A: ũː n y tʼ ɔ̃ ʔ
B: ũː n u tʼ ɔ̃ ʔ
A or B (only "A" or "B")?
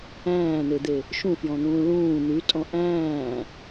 A